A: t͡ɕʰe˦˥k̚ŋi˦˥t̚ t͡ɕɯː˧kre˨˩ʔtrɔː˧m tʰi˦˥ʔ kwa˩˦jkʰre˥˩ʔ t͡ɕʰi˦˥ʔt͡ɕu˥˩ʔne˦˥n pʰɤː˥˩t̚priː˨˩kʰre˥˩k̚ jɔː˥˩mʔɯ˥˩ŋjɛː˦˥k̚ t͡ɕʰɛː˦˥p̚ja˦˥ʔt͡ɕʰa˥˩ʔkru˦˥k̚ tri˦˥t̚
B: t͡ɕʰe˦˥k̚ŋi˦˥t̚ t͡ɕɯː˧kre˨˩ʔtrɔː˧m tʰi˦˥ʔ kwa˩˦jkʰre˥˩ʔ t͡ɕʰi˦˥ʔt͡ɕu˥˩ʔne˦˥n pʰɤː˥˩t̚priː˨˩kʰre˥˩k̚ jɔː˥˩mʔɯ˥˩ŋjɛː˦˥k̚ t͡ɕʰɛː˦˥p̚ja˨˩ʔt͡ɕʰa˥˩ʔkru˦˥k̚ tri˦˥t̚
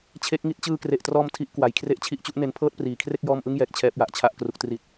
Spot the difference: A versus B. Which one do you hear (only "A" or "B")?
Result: B